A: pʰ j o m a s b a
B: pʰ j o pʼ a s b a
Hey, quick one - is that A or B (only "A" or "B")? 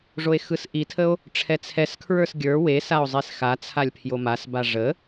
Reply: A